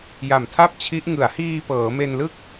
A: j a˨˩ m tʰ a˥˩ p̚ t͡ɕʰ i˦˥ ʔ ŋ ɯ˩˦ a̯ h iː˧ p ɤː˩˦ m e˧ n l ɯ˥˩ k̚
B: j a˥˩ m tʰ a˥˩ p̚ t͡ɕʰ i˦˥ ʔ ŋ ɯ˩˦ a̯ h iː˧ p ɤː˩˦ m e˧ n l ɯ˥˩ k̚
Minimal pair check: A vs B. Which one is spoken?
A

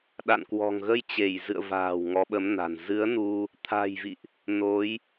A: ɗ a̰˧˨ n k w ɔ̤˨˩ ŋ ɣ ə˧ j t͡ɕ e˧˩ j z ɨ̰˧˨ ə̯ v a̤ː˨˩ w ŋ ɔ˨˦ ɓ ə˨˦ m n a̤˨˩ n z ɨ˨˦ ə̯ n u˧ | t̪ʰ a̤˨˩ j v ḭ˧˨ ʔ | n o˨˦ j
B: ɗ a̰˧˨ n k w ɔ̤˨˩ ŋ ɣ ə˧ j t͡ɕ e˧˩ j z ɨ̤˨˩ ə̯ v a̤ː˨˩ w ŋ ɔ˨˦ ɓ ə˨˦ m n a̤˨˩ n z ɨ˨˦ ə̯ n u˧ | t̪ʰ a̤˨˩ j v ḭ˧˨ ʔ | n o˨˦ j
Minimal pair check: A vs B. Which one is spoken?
A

